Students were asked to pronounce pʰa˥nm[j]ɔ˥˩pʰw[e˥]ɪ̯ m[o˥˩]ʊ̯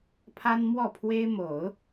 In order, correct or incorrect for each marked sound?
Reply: incorrect, correct, incorrect

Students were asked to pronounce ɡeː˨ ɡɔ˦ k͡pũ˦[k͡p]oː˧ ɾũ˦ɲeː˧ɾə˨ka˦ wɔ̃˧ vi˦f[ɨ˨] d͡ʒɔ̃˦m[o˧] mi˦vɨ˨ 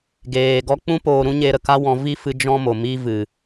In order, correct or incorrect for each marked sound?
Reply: incorrect, incorrect, incorrect

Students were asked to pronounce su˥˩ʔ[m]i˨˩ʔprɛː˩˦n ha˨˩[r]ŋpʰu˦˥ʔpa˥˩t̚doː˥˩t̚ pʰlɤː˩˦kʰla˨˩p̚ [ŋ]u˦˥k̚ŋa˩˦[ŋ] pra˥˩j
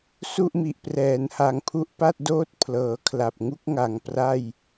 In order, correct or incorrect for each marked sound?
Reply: correct, incorrect, correct, correct

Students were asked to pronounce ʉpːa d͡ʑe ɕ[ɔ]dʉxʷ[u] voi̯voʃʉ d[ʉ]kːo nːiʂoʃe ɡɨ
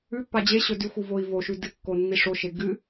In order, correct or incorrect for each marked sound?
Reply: incorrect, correct, incorrect

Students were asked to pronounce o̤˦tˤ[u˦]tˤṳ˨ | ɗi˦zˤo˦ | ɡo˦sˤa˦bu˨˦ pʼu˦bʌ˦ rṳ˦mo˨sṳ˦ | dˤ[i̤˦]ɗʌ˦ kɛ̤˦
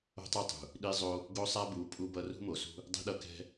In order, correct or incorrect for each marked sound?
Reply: correct, correct

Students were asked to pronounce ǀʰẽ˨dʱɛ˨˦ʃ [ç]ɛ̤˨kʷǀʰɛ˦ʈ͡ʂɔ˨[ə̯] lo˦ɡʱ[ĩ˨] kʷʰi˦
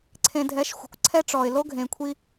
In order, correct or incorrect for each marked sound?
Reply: incorrect, incorrect, incorrect

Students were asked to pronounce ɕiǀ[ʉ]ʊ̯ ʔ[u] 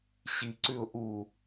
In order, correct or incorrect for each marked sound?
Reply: correct, correct

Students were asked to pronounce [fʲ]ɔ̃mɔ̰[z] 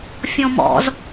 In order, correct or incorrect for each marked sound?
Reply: correct, correct

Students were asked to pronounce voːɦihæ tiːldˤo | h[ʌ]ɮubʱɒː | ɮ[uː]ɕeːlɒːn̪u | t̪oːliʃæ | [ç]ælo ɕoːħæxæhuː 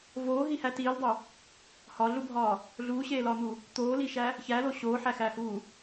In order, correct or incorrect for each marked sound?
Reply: incorrect, correct, correct

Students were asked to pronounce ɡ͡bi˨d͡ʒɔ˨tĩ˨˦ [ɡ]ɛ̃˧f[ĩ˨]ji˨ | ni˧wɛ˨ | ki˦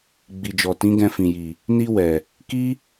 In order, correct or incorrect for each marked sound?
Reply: correct, correct

